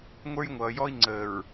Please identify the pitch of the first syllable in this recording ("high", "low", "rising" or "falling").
high